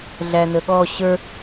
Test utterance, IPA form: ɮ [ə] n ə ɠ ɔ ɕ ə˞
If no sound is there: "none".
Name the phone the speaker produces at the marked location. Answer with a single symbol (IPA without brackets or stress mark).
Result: æ